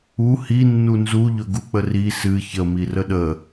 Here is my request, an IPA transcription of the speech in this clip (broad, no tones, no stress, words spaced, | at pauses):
u hi nːunzu ʎɵɡuk͡pəri sɨ çə mirəɗə